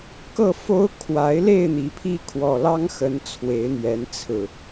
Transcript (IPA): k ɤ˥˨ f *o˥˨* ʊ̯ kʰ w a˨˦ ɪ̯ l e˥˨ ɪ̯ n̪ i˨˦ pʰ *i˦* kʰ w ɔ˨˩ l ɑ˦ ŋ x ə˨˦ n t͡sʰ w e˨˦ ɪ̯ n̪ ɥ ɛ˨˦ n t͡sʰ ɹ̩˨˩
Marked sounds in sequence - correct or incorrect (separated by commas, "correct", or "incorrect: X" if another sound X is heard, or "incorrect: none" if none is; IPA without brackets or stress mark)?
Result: incorrect: o˦, correct